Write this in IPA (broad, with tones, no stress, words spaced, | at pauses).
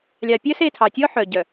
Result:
lʲɑ˨ pʲœ˦se˦˨tʰɑ˨tʲɔ˦ ħœ˨ɟœ˨